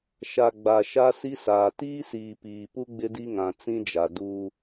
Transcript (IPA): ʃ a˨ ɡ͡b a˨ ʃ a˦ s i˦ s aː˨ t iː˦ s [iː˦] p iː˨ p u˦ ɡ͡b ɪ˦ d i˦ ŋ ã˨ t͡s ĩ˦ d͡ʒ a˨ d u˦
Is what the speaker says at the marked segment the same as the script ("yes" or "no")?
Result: no